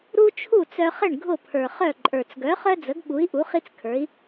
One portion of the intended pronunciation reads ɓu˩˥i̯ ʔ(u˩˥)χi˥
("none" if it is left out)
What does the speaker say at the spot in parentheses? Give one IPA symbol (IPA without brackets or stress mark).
u˩˥